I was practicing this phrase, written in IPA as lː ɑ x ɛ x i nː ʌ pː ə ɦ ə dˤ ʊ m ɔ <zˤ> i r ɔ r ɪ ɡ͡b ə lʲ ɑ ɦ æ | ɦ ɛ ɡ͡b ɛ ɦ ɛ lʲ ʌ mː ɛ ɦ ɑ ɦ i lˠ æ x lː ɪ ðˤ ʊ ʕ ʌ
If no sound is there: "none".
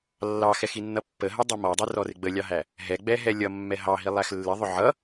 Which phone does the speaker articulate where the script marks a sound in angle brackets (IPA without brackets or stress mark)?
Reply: dˤ